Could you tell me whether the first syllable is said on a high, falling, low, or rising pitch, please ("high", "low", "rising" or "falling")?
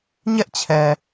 high